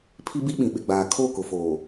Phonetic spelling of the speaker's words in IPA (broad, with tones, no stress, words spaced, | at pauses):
pʰi˦bi˦ɓĩ˨ ɓɪ˨ɡ͡baː˨ kʰo˦˨ kʊ˨foː˨